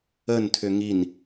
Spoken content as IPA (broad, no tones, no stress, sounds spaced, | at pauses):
ə n tʰ ʏ ŋ i n